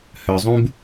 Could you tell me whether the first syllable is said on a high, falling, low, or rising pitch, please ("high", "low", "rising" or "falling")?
low